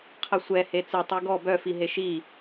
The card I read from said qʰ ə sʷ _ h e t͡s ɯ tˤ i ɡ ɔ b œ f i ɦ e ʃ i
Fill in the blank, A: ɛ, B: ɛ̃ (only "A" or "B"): A